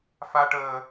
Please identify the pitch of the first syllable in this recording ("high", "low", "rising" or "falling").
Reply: high